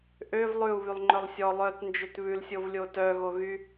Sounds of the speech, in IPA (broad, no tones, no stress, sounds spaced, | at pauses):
ʔ ø v lˠ ʉ u̯ β y lˠ ŋ͡ǃ œ lˠ sʲ ɔ lˠ œ t n d͡ʒ ø t β ʉ l sʲ o v lʲ o t œ ɣ o ɣ y